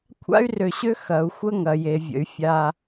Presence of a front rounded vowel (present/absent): present